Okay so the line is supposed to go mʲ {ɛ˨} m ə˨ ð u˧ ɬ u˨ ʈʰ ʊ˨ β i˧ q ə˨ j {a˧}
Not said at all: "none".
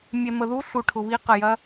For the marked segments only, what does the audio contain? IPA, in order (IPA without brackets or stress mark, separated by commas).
ɛ˨, ɐ˧